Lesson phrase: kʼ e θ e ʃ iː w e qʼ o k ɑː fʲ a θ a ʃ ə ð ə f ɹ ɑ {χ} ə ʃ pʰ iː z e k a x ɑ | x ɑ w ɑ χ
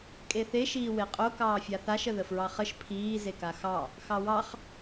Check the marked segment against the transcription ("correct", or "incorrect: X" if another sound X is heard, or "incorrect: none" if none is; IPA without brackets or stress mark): correct